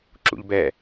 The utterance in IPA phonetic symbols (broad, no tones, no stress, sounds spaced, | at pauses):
ǁ ṵ ʎ b ɛ